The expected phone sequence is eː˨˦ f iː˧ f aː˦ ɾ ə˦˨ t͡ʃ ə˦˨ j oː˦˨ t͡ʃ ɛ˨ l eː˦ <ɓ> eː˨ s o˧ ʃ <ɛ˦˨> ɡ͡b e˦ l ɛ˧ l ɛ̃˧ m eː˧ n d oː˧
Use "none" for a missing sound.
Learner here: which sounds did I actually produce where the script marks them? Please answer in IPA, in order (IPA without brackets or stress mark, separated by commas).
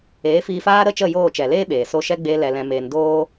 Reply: ɓ, ɛ˦